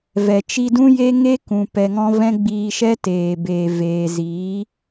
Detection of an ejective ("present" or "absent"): absent